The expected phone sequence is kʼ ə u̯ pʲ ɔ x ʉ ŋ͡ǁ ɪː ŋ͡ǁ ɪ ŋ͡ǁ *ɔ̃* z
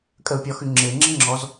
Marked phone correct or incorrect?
incorrect